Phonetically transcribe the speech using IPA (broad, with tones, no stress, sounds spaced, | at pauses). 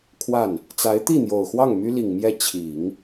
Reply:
kʰ w a˥˩ n | t͡s a˧˥ ɪ̯ t̪ i˥˩ n̪ j o˨˩ ʊ̯ x w ɑ˥˩ ŋ m y˥ l i˨˩ ŋ m j ɛ˥˩ t͡ɕʰ i˨˩˦ ŋ